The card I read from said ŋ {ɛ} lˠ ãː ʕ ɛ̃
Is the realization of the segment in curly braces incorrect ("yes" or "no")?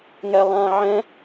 no